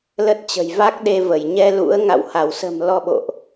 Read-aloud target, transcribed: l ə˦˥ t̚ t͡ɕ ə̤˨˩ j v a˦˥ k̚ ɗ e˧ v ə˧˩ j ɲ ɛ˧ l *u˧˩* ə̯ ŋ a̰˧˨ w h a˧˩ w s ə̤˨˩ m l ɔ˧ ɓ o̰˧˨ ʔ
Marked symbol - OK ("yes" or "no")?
no